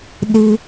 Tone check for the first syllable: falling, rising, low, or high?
high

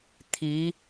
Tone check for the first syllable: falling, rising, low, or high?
rising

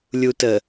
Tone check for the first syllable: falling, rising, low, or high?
low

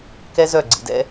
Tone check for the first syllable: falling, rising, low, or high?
high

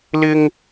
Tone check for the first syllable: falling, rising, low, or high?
high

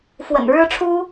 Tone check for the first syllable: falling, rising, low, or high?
low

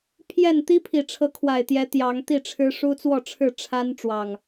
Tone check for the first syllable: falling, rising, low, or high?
falling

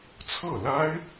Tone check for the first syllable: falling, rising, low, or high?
falling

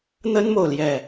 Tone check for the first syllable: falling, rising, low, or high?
high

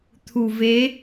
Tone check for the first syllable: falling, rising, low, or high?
low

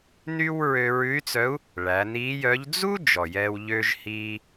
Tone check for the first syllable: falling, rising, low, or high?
high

